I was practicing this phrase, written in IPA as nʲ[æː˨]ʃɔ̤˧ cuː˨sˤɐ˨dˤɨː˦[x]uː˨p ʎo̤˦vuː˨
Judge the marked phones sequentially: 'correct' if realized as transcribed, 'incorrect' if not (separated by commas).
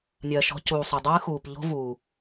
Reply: incorrect, correct